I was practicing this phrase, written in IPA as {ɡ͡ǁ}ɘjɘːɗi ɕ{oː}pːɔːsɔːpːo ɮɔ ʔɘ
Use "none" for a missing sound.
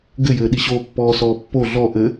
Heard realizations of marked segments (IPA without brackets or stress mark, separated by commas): ɡ, oː